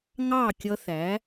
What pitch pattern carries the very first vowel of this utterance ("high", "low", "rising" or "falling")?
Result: falling